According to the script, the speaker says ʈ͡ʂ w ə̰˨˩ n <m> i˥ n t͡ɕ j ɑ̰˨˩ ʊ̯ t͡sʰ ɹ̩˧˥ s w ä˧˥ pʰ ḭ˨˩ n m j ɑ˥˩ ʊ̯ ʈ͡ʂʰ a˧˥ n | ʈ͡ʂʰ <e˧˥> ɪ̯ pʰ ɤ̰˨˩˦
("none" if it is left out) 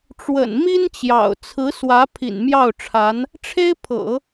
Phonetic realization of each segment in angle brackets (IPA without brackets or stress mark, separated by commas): m, e˥